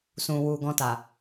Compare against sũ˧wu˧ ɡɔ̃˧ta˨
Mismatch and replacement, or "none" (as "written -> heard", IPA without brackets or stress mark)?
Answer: none